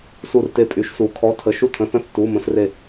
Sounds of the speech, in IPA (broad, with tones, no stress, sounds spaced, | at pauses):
s u˥˨ r t e˥˨ pʼ y˨˥ ʃ s u˨˥ kʰ ɔ˧˥˧ tʰ ə˧˥˧ ʃ u˥˨ tʰ ə̃˧˥˧ θ ə̃˥˨ θ t u˧˥˧ m ə̃˦˥ s r e˥˨